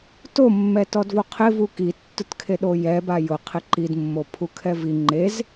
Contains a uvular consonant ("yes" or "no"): yes